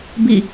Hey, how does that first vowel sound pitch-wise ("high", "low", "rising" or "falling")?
falling